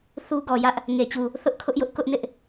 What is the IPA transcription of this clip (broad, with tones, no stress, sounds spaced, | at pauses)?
θ u˦ ɡ ɔ˨ j ä˦ ʔ | ŋ e˨ t͡ɕ u˨ | θ ʊ˦ ʔ kʰ ʊ˦ ʔ j ʊ˦ ʔ k ʊ˦ ʔ n ɪ˦ ʔ